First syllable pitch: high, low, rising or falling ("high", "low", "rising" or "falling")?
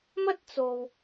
high